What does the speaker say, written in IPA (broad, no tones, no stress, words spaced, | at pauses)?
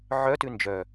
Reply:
ʕœtʉ nd͡ʒœ